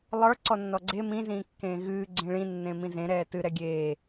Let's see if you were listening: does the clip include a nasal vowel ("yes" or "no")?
yes